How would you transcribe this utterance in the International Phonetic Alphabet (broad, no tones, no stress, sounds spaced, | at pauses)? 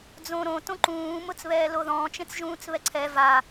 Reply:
d͡z õ ɾ õ t õ ǃ ũː m ʊ t͡s β ɛː l o ð ɔ̃ː t͡ʃ ẽ t͡s ʒ ũː t͡s β ɛ ǀʰ ɛ v a